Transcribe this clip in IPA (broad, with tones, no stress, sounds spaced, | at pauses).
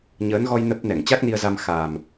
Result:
ɲ əː˨˦ n ɣ ɔ˧ j n ə˦˥ p̚ n ɛ˧˩ ŋ t͡ɕ a˦˥ k̚ n i˧ ə̯ z a˧ m x a˨˩ m